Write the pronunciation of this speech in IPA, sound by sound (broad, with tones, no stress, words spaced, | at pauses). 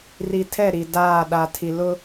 ri˨tʰɛ˦˨ ɾi˨daː˦˨ ɗa˨tʰi˨ lʊ˦